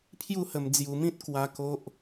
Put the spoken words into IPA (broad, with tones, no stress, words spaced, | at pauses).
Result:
pʰju˥˧hə˧md͡zju˧mĩ˦t̚ kwa˦ko˦ʔ